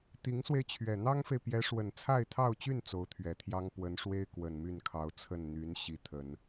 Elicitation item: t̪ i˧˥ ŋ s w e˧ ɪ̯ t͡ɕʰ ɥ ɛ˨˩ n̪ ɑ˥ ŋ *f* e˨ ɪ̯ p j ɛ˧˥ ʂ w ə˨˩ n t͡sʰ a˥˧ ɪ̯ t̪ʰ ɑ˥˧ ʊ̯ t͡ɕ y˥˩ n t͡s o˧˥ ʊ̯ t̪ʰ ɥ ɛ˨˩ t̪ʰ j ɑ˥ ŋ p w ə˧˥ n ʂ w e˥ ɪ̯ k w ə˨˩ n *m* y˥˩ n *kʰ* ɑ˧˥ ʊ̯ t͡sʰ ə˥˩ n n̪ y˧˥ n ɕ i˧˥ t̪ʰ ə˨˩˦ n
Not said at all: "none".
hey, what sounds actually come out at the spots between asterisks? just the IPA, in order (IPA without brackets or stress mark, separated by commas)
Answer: f, m, kʰ